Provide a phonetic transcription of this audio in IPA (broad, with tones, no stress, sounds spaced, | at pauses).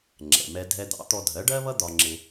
ŋ͡ǁ ɛ̰˩ m ɛ˧ dʱ ɛ˧ d̪ ɑ̰˩˥ t̪ ɔ˧ dʱ ɜ˩˥ ɖ ɜ˥ β ʌ˥ d̪ ɒ˧ ŋ͡ǁ ɪ˧